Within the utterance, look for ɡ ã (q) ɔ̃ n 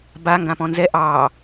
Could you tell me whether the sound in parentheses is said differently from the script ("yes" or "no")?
yes